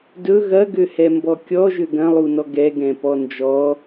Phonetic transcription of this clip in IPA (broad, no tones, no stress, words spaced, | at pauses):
dɵ ɣɐɡøhɛmbɔ kʲɔʒø ɡɐ̃lˠunɔ ɡɛɡɛ̃ pɔnd͡ʒɔ